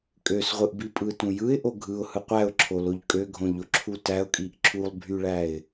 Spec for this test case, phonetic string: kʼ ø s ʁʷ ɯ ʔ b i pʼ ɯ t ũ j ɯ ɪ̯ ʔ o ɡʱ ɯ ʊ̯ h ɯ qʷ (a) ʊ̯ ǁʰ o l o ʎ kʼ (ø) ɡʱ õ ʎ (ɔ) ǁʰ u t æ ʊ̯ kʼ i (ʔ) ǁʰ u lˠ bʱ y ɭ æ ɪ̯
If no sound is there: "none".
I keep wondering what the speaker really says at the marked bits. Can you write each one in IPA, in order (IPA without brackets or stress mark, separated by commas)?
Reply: æ, ø, o, ʔ